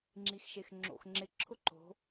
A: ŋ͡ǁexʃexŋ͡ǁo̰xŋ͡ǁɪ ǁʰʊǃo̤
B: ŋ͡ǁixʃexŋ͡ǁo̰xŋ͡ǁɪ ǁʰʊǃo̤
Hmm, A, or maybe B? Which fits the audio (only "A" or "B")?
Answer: B